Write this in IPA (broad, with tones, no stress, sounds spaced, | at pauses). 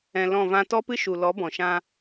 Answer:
ɛ̃˨ l ɔ̃˦˨ v ã˦ t ɔ˦ p ɨ˦ ʃ u˨ l ɔ˨˦ b ɔ̃˨ ʃ ã˧